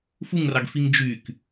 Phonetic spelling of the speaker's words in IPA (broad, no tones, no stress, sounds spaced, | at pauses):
f u ŋ r ɑ ɡ f i ŋ d͡ʒ y k